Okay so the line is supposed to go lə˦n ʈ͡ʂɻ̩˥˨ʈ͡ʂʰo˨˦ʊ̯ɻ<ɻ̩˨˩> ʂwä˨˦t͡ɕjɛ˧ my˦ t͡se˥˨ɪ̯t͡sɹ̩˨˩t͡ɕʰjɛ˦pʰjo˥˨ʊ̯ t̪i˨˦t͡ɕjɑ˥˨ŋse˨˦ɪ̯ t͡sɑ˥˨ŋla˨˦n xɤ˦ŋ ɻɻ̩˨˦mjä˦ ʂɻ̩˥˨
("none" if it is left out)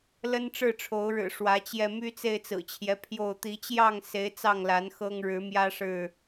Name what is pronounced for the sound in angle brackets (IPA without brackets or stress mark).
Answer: ɻ̩˨˩